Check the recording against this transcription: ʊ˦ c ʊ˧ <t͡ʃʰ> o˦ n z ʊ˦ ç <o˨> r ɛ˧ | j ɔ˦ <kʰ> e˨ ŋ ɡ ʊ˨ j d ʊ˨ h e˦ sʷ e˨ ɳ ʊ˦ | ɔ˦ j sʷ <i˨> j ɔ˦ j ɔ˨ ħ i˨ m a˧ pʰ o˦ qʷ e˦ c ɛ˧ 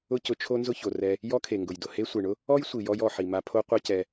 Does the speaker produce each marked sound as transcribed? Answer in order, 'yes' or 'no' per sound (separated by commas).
yes, yes, yes, yes